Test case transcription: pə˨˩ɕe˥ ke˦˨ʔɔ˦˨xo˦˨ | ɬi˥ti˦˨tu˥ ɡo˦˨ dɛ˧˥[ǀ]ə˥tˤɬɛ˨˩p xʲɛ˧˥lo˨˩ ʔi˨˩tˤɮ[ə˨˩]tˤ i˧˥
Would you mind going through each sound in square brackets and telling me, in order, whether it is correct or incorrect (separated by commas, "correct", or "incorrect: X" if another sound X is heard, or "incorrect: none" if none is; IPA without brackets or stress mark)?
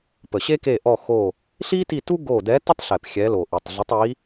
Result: incorrect: t, incorrect: ə˧˥